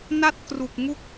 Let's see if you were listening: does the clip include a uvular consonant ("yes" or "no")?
no